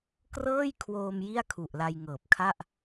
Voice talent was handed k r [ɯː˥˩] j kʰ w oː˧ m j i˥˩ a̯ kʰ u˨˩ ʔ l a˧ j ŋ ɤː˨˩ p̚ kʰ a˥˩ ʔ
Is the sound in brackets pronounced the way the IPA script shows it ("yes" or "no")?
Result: no